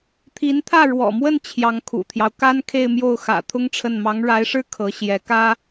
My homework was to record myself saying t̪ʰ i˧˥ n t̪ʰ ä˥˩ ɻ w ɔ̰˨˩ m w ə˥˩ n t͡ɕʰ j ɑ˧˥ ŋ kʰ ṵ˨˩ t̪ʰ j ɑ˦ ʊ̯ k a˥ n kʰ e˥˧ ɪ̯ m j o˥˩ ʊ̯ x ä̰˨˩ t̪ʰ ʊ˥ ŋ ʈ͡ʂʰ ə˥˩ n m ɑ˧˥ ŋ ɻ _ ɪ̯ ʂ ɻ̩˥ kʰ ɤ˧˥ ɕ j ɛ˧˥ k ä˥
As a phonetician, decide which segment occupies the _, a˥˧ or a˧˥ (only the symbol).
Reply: a˧˥